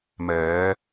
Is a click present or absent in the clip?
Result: absent